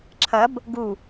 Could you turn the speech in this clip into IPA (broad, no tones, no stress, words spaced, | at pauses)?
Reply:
ǁʰɐb | ɡu